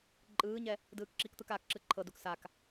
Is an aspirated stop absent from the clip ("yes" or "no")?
no